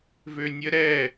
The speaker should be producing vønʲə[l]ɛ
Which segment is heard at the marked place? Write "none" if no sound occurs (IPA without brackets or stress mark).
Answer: ɾ